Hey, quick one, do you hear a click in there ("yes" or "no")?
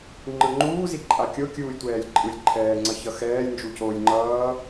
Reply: yes